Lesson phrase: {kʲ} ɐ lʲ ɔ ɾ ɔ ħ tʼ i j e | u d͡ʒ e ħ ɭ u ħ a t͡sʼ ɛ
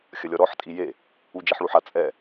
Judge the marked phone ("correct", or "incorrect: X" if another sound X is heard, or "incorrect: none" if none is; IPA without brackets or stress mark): incorrect: xʲ